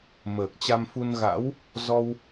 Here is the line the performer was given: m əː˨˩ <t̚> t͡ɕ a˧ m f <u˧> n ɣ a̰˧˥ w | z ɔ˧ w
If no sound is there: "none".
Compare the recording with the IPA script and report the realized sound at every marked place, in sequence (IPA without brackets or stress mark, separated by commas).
k̚, u˧